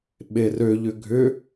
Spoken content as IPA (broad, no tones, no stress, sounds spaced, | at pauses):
ɓ e r ø ʎ ʏ ɡʱ ʏ